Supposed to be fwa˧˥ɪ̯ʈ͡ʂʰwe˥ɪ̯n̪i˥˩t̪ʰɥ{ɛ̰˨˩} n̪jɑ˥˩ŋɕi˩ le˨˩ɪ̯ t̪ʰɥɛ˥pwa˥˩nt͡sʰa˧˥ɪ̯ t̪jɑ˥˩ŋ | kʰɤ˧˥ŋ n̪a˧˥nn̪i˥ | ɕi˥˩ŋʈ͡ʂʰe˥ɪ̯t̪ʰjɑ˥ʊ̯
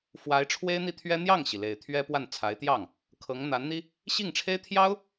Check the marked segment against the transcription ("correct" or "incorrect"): incorrect